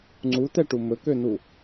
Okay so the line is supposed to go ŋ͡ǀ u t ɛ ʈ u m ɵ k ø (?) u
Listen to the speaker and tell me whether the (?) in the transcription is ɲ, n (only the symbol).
n